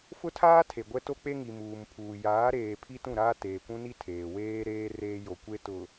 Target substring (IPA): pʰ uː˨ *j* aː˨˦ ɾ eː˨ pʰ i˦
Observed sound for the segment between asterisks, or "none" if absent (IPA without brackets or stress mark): j